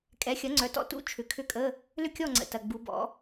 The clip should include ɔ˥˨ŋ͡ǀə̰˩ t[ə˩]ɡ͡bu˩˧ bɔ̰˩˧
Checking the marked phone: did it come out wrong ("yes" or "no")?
yes